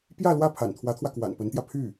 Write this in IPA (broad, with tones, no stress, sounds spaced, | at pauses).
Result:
p j ä˥˧ l w ä˥˩ pʰ a̰˨˩ n t̪ʰ w ä˧˥ t̪ʰ w ä˧ k w a̰˨˩ n p ə˧˥ n t̪ j ä˧ pʰ y˥˩